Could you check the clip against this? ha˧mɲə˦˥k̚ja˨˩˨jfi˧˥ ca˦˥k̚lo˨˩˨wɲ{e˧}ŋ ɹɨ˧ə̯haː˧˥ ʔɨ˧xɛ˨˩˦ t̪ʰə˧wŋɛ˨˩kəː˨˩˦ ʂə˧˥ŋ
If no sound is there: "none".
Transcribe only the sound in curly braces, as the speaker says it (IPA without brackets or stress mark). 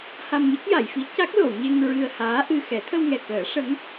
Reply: e˧